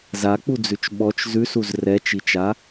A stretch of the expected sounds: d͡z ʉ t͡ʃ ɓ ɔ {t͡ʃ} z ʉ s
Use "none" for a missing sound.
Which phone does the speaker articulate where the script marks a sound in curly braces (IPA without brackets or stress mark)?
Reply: t͡ʃ